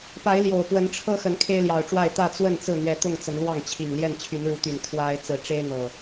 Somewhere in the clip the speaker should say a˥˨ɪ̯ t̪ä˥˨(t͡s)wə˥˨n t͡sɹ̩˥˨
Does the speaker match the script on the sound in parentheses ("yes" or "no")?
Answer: yes